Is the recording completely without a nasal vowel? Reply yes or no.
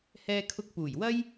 yes